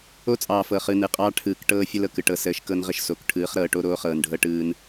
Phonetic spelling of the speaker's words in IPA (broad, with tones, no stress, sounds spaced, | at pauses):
o˦ t͡sʼ ɑː˨ f ɤ˨ χ ɯ˨ n ɯ˨ qʼ ɑː˦ ʈʰ ɯː˨ k ʈ ɤː˦ fʲ ə˦ l ɤ˨ k ɯ˨ ʈ ɤ˨ s əː˨˦ ʃ k ɤ˦ n ʁ ə˦ ʃ s o˨ k ʈʰ ɯː˨˦ χ ɾ ɤː˨ ʈ o˦ ɾ oː˦ χ ɤː˨ n ɖʱ ɤ˦ ʈ ɯː˦ n